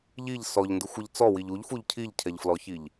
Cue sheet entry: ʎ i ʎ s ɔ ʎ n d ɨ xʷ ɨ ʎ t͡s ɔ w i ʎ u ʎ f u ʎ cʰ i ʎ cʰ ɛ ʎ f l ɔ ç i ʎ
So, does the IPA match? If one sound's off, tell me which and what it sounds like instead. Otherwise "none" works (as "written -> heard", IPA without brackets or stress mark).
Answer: none